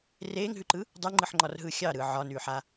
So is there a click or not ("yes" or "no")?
yes